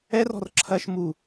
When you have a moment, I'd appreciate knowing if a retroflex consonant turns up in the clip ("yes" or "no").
no